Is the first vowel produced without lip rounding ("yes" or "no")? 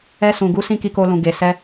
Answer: yes